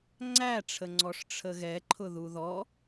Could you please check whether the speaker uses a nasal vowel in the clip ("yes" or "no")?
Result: no